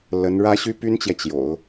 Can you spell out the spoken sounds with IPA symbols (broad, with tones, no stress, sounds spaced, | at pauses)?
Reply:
l ə˧˥ n ɻ ä˥ ɕ y˥ p y˥ n t͡ɕ j ɛ˨ t͡ɕ j o̰˨˩˦ ʊ̯